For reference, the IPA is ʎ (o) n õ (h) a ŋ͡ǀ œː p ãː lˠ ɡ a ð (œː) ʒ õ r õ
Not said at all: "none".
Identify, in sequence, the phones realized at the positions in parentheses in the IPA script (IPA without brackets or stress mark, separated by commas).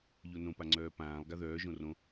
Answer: o, p, œː